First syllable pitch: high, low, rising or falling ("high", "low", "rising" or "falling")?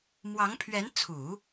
rising